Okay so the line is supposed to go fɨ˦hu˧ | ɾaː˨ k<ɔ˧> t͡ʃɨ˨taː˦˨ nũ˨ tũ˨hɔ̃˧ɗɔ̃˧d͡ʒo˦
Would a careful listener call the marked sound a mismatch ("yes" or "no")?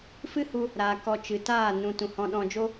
no